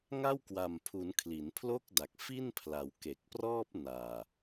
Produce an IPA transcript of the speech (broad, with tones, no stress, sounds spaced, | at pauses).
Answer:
ŋ a˥˩ w k w a˨˩ m pʰ u˩˦ n kʰ l i˩˦ n pʰ l o˥˩ k̚ d a˨˩ k̚ f i˥˩ n pʰ l a˩˦ w k e˨˩ k̚ p r ɔː˥˩ p̚ n aː˨˩